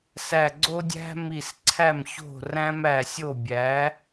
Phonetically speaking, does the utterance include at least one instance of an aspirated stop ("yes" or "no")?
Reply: yes